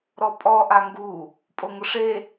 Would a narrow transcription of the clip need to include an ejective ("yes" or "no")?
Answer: yes